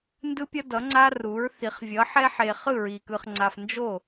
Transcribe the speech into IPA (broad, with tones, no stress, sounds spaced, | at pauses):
n d ɯ˦ pʲ ʌ˦ d ʌ˩˥ ŋ͡ǀ a˦ r u˩˥ ɹ θ i˩˥ χ vʲ ʌ˩˥ ħ ɛ˦ ħ e˨ χ ɯ˥˩ ɹ i˨ k ɯ˨ χ ŋ͡ǀ a˨ f n d͡ʒ o˥˩